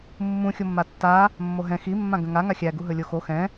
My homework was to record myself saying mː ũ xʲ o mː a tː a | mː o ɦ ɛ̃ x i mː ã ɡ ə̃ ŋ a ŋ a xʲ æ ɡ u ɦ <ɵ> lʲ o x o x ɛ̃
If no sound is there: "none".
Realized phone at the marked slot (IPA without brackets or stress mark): ɵ